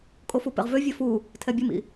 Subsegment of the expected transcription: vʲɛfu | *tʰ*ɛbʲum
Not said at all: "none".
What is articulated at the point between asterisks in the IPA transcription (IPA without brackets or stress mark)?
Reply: tʰ